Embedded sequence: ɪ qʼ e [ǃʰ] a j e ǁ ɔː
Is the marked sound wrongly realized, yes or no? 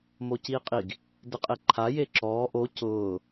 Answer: no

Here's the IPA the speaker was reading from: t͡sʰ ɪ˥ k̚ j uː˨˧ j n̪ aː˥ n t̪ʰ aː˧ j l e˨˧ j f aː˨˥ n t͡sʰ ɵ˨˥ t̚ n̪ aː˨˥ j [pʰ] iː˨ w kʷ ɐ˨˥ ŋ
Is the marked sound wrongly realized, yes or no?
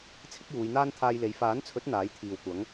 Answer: yes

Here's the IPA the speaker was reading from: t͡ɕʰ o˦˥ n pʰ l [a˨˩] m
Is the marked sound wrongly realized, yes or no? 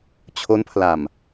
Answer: no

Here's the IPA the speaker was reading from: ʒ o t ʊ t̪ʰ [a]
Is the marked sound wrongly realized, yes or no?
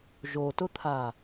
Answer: no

